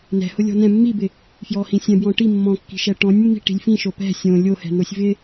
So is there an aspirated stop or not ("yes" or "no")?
no